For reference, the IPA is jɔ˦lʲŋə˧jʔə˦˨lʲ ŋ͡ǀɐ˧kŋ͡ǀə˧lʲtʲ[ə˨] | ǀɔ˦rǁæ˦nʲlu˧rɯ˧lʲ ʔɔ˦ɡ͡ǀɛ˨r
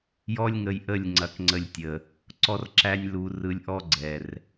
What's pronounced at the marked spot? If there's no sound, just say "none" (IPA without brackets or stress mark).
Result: ə˨